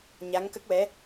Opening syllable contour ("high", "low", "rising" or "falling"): rising